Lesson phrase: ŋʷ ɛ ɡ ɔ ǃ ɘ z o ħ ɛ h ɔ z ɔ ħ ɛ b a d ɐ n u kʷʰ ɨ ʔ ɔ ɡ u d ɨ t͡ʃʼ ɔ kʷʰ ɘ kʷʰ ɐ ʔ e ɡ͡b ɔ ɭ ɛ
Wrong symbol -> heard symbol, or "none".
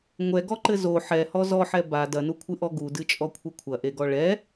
ɡ͡b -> ɡ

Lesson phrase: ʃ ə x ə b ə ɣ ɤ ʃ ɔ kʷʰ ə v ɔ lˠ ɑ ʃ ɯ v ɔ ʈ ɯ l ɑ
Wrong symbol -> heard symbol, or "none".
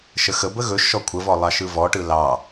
ɤ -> ɵ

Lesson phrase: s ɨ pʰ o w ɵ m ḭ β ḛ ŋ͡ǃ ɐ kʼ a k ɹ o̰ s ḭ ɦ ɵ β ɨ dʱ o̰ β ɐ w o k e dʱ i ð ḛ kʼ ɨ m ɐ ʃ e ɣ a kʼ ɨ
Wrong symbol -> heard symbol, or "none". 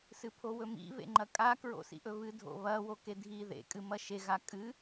ɦ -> ʔ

